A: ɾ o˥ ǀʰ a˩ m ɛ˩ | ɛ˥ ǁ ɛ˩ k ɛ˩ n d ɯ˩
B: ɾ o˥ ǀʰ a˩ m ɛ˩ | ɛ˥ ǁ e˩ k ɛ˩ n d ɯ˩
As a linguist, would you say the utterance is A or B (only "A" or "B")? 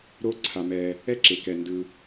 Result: B